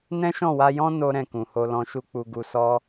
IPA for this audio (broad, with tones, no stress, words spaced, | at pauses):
nɛ̃˦ʃɔ̃˦˨wa˧jɔ̃˦ no˦ɾɛ̃˦˨ kũ˨ho˧lɔ̃˧ʃu˦ k͡pu˧ɡu˧ sɔ˦